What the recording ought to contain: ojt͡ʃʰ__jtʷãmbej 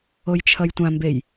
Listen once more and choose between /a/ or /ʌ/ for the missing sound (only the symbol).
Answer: ʌ